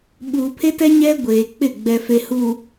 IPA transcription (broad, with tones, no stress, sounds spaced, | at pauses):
ɓ uː˨ pʰ e˦ t ɛ˦ ɲ ɛ˦ ɡʷ eː˨ k͡p ɪ˦˨ ɡ͡b ɛ˨ f e˨ h u˨